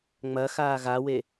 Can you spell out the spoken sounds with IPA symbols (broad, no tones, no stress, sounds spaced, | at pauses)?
ŋ͡m ɐ x aː ɣ a w e